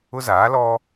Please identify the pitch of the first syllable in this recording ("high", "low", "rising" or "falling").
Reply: high